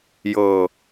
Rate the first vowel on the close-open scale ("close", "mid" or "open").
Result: mid